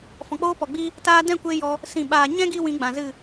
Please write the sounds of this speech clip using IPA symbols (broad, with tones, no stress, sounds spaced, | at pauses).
f ɔ̃˨ k͡p oː˦ p ɔ˨ ɡ͡b i˦ | t aː˧ d ɛ̃˦˨ kʷ e˧ j ɔ˧ | s ĩ˨ ɓ aː˨ ɲ ɛ̃˦ ɡ i˦ w ĩ˨˦ ɡ͡b ã˨ z ɨ˦˨